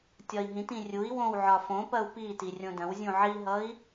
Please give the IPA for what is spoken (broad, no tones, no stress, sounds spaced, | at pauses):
tʲ ɒ i̯ ɦ ĩ t ĩ rʲ u i̯ w õ w ʕ ɒ f õ p ɐ u̯ p i t i rʲ õ d ɐ̃ w zʲ ũ ʕ i ɦ ʌ i̯